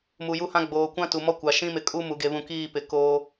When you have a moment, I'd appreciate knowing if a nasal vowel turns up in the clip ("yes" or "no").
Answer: yes